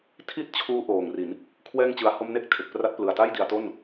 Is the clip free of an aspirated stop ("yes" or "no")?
no